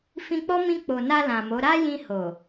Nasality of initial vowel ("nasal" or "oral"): nasal